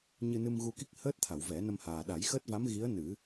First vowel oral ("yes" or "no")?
yes